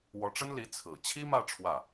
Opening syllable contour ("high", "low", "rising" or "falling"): rising